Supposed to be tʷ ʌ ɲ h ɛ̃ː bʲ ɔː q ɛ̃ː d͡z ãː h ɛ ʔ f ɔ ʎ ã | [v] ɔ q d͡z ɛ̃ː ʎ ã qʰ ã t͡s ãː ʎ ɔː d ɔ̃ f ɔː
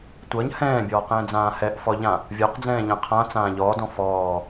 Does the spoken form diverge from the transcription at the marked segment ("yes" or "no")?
yes